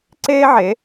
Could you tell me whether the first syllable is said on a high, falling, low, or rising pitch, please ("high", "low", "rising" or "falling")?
high